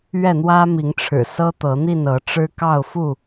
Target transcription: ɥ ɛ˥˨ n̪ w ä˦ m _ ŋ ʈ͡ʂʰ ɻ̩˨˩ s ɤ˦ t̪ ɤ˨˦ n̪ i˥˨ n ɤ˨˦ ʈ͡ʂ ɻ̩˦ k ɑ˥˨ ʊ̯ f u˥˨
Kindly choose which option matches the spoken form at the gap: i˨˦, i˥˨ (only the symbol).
i˨˦